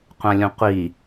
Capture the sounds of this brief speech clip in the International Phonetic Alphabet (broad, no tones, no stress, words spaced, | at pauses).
qʷãlʲũqʷi